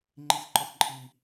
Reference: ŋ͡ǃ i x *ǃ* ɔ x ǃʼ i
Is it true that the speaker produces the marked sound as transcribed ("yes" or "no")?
yes